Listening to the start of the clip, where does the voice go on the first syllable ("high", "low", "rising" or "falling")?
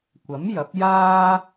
rising